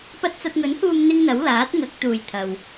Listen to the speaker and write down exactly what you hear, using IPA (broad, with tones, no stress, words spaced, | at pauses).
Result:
pɐ˥t̚ t͡sɐ˧t̚ŋɵ˨˥nhuː˧m n̪ɪ˥ŋn̪ɐ˨˥w laː˨˥t̚ŋɐ˨˥k̚ t̪uː˨j t̪ʰɐ˨w